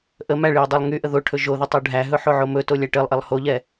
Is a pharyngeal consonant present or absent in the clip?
present